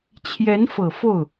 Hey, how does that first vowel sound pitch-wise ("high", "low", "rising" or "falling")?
rising